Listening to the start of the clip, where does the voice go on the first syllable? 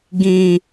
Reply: low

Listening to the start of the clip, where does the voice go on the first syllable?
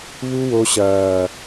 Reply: high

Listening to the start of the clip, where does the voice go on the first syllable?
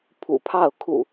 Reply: low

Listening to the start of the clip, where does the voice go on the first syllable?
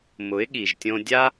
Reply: rising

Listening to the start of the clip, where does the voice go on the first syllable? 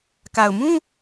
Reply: low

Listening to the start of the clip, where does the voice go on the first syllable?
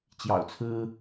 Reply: low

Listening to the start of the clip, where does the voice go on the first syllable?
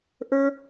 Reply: high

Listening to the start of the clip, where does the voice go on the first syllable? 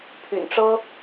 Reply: low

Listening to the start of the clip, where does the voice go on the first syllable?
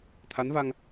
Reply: rising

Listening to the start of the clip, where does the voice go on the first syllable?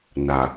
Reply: low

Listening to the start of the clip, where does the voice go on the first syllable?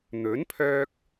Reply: rising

